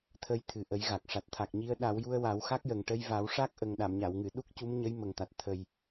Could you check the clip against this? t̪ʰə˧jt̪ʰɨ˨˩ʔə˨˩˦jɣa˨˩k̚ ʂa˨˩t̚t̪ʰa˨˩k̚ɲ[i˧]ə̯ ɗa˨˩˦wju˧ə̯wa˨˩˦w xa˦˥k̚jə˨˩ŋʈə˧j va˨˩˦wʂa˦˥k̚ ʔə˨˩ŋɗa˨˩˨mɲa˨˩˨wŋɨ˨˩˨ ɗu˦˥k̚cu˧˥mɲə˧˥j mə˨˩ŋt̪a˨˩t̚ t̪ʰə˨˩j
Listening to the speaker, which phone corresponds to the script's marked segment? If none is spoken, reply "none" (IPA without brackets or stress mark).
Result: i˧